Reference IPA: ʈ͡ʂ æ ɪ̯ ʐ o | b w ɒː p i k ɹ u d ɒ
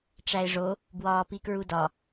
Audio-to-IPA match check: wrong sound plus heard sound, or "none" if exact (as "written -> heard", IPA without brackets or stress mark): none